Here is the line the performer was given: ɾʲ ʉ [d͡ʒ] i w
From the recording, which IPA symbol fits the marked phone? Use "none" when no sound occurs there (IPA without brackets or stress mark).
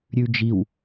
d͡ʒ